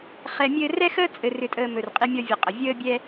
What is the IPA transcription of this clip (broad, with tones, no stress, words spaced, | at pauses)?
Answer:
χɛ˨mʲɘː˧ rɛ˦xəː˦ t͡sʼɘ˧rʏ˧tʼəː˧ mɵ˨rqʼi˧mʲɒ˧vʲɘ˨ qʼə˨ vʲəː˦bʲɛ˦